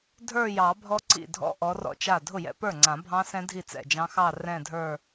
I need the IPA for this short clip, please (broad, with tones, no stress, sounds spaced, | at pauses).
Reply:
dʱ ə˞˥˧ j ɑ˨˩˦ bʱ ɔ˦˥ ǀ ḭ˥˩ dʱ ɔ̰˦˥ ʔ ɔ˨˥ r ɔ̰˥˩ t͡ʃ a˥˩ dʱ ʊ˥˩ j ɛ̰˥˧ p ə˞˥˩ ŋ͡ǀ ã˨˩˦ bʱ ɑ̃˦˥ s ɛ̃˦˥ dʱ i˥˩ t͡s ɛ̰˥˩ d͡ʒ ɑ̃˦˥ x ɑ˥˧ r ɛ̃˥˧ dʱ ə˞˥˧